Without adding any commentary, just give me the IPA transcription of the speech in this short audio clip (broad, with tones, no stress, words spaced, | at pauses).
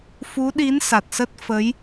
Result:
fu˨˦ɗi˨˦n sa˨˩t̚sə˦˥t̚ fə˨˦j